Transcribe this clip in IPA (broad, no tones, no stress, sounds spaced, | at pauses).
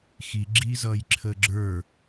x i ɡ͡ǁ iː z ʌː j ǁʰ əː ɡ͡ǁ ə˞